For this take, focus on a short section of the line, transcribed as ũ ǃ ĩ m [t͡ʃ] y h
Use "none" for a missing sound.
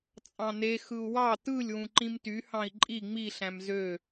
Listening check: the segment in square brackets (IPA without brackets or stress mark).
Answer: t